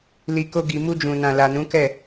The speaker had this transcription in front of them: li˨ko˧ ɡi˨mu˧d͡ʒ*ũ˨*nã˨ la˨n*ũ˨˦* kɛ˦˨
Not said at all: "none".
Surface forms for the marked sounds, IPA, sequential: ũ˨, ũ˨˦

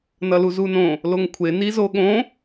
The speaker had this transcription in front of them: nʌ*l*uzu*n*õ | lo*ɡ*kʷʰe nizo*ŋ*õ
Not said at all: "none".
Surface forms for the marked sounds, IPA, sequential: l, n, ŋ, ɠ

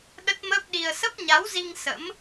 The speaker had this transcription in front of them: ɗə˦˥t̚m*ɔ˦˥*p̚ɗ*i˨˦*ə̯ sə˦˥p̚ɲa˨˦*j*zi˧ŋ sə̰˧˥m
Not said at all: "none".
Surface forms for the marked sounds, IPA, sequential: ə˦˥, i˧, w

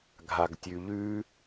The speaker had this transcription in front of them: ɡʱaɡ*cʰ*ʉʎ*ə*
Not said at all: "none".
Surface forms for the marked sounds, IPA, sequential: tʲ, ʉ

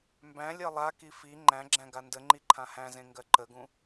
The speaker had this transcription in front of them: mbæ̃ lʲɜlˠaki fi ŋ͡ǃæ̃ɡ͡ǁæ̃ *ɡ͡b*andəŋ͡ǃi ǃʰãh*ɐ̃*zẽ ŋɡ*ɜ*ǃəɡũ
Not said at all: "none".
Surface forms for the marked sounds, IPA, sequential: ɡ, æ̃, ɜ

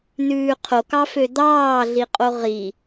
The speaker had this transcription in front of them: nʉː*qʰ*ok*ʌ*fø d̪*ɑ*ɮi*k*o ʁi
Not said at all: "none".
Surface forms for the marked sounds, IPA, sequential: qʰ, ɑ, ɑː, qʼ

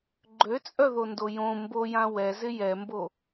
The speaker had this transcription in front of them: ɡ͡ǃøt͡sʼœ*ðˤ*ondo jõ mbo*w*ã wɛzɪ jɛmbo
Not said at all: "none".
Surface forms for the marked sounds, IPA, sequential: ð, j

